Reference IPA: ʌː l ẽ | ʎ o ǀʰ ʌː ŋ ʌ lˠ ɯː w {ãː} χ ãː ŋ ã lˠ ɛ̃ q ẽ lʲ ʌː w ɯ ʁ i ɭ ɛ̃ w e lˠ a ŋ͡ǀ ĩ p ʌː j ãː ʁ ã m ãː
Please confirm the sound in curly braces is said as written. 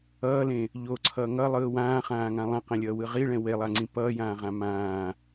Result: yes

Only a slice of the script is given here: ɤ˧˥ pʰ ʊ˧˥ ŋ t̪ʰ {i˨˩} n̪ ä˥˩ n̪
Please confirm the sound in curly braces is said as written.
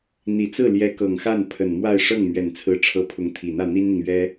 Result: yes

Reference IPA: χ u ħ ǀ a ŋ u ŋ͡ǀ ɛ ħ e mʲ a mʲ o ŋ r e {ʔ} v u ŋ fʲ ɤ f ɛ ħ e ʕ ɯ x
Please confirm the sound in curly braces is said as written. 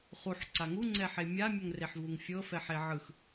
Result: no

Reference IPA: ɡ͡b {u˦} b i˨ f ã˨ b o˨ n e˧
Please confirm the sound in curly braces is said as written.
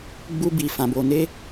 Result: no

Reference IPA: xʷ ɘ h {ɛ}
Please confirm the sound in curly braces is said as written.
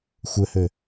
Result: no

